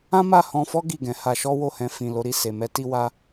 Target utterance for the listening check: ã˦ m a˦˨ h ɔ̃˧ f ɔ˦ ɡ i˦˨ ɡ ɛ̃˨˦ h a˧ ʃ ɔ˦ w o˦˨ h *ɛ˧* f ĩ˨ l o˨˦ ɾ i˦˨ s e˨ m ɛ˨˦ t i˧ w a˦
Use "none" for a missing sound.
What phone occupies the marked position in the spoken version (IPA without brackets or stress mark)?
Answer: ɛ̃˧